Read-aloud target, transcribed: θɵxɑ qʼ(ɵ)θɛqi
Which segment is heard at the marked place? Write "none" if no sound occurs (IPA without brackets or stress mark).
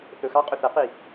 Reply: ɵ